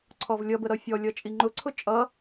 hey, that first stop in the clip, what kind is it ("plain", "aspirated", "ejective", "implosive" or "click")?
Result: click